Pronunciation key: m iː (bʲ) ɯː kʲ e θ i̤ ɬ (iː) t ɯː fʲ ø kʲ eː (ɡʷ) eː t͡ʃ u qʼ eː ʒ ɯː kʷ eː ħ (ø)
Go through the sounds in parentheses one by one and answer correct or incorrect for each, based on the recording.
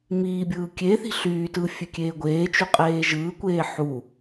correct, incorrect: yː, correct, incorrect: u

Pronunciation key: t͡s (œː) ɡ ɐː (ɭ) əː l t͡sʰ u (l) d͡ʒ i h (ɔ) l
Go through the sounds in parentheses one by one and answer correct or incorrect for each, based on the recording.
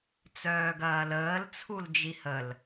correct, incorrect: l, correct, incorrect: ə

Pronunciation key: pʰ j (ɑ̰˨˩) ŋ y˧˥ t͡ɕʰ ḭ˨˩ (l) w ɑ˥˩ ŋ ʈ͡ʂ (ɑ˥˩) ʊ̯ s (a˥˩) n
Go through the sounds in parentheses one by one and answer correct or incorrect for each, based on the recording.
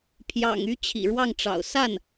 correct, incorrect: ɻ, incorrect: ɑ̰˨˩, correct

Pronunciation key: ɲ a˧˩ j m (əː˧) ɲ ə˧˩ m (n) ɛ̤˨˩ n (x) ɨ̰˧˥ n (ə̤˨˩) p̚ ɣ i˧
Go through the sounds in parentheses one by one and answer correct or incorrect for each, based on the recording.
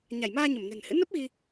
incorrect: aː˧, correct, incorrect: h, incorrect: ə˦˥

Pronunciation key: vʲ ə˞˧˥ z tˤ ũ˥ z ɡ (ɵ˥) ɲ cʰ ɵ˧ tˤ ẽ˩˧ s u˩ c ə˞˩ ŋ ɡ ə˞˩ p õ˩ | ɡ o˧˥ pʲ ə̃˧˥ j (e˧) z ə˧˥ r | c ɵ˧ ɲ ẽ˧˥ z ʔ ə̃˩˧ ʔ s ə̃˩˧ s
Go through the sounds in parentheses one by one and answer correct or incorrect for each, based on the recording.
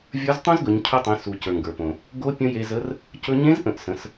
incorrect: ɵ˩˧, correct

